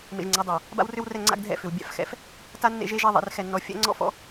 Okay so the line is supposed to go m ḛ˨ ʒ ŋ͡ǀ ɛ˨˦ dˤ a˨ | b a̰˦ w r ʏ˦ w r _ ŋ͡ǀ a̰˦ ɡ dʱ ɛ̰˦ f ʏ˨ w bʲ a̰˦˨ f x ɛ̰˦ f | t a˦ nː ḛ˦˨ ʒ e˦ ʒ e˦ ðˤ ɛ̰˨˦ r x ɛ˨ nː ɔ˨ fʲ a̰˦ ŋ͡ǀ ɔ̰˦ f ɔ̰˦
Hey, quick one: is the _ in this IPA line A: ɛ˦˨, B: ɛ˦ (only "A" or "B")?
A